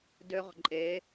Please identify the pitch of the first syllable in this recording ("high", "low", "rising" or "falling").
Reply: high